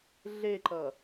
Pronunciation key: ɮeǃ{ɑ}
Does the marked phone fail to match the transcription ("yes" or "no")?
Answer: yes